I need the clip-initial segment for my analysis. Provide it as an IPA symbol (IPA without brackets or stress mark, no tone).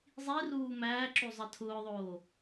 zˤ